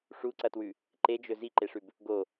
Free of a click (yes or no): no